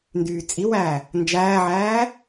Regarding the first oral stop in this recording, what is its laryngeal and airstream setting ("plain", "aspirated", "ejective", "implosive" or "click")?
plain